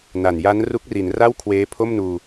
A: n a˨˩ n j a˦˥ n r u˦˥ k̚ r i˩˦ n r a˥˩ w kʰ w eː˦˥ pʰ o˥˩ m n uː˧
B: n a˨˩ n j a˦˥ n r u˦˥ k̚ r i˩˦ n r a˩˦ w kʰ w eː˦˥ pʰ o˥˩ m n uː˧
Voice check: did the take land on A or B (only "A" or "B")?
A